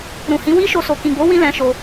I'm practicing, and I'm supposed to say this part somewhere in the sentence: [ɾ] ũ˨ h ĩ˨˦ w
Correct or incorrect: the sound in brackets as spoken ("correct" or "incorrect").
correct